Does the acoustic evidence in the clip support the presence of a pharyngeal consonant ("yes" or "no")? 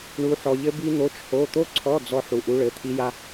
yes